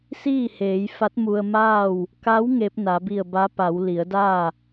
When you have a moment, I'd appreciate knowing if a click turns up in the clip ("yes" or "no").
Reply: no